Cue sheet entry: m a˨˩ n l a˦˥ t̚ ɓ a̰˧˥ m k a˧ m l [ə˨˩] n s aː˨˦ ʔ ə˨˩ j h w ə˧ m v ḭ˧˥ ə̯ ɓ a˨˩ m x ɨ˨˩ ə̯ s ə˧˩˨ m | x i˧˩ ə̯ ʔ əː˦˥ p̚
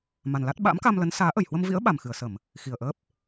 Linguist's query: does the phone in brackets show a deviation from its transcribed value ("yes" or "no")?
yes